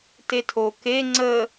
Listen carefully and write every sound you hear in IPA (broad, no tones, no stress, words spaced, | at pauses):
tetʰo ke ŋ͡ǀə